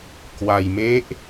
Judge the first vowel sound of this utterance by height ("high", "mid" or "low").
low